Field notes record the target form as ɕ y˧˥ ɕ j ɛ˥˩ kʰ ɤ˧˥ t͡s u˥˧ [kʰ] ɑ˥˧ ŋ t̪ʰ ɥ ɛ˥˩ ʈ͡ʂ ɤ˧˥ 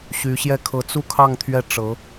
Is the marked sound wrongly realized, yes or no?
no